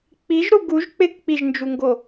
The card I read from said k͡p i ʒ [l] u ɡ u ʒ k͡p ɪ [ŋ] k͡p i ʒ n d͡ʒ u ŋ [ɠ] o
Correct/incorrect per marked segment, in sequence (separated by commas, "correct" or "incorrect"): incorrect, incorrect, incorrect